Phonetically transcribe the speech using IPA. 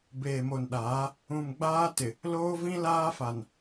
beː˨mo˨nɗaː˨˦ | ũ˨mɡ͡baː˦tɪ˨ | loː˦vĩ˦laː˦fa˨n

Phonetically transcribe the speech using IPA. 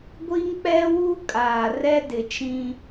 ɡʷi˦ŋk͡pɛ˦wu˦ kʼaː˨rɛ˦ dɪ˨t͡ʃĩ˦

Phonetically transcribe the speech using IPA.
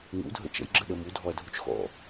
ŋṵdʱə̰ t͡ʃə̰jɡ͡ǁəɗə mudʱɔɐ̯dʱut͡ʃ xɔ̰

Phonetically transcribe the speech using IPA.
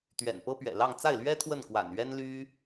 t̪ɥɛ̰˨˩npɤ˥pɥɛ̰˨˩lɑ˥˧ŋ t͡sa˥˩ɪ̯lɥɛ˥ t̪ʰwə˥˩nkwa̰˨˩nɥɛ˥n ly˥

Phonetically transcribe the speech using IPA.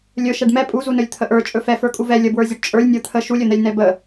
lʲɵ ʃɛɖmɛ pʼuzunɵlʲ t̪ʰəʔə˞ t͡ʃʼɵfɛ fə˞kʼuvɛ lʲəbwə˞zʲɵɖ t͡ʃʼə˞lʲ nʲə˞t̪ʰə ʃulʲɵn̪ɛlʲ nɛbə

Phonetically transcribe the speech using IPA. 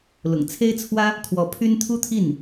lʊ̰˨˩ŋ t͡sʰe˥ɪ̯t͡sʰwä˥ | kʰwɔ˧˥pʰy˥n t̪ʰu˥t̪ʰi˥˩n

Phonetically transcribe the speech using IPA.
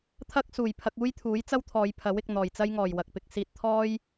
t̪ʰɐ˥k̚suː˨˩jpʰɐ˧k̚ uː˥jt̪ʰuː˨˥jt͡sɐ˥wt̪ʰɔː˨˧j pʰɐ˨˥wɪ˨k̚ n̪ɔː˨˩jt͡sɐ˥jŋɔː˨˩j wɐ˨k̚pɪ˨k̚siː˧t̚t̪ʰɔː˥j

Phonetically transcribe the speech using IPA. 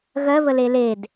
ɣɜ βəleled

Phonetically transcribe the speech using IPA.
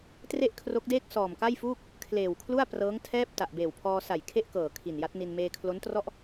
tre˥˩ʔkʰro˦˥k̚deː˥˩k̚ sɔː˨˩mka˥˩jfuː˥˩k̚ | kʰleː˨˩wkʰlu˥˩a̯prɤː˦˥ŋ tʰɛː˥˩p̚ ta˨˩ʔbeː˨˩wpʰɔː˧ sa˨˩j kʰe˥˩ʔkɤː˨˩ kʰi˨˩nja˦˥t̚ni˧n meː˧kʰlo˦˥ntrɔ˥˩ʔ

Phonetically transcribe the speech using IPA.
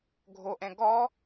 ɡʱoʔɛ̃ ɡɔ

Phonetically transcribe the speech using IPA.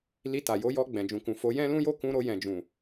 li˧ta˨ jo˨˦jɔ˧ ɡ͡bɛ̃˨d͡ʒũ˨kũ˨ fo˨˦jɛ̃˦lũ˦jo˦ kũ˧ɾo˧jɛ̃˨d͡ʒũ˨

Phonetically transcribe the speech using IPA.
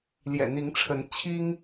ljɛ̰˨˩n̪i˨˦ŋʈ͡ʂʰə˨˦n t͡ɕʰi˦ŋ

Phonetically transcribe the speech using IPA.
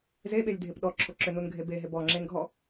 zeɓelʲdʱep ɗɔǁʰoǁʏnun ɡʱebeɦeb ɔ ŋ͡ǁenɡʱɔ

